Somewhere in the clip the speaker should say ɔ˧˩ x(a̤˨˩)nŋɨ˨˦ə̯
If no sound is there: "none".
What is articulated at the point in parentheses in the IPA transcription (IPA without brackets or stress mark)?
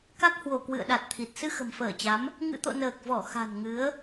a̤˨˩